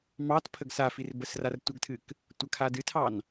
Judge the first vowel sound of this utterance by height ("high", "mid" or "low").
low